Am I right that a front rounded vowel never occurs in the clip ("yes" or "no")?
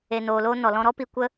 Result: yes